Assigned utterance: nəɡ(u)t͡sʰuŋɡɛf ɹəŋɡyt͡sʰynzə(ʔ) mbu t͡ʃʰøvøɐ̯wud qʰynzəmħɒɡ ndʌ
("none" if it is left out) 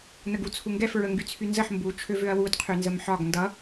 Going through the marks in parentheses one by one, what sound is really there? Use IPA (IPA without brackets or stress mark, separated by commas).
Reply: u, ħ